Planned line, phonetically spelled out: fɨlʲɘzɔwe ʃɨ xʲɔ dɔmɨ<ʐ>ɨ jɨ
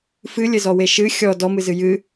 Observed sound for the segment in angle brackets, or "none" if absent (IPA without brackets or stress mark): z